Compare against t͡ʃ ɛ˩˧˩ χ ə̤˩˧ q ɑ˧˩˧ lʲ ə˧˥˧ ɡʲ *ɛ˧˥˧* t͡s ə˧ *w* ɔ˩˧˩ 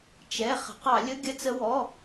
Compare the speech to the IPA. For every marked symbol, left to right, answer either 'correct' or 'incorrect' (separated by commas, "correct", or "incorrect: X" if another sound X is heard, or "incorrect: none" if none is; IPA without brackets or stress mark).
incorrect: ə˧˥˧, correct